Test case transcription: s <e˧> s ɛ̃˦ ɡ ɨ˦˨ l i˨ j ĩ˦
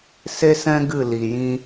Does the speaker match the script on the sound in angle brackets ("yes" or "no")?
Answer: no